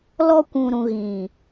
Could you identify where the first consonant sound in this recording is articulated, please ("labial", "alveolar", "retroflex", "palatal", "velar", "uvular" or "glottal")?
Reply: alveolar